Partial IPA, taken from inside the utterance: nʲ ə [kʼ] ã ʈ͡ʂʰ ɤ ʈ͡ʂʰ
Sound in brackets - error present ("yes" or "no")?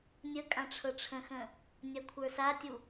no